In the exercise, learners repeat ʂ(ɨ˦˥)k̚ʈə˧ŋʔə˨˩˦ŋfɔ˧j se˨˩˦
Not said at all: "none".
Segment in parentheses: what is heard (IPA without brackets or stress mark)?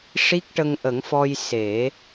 i˦˥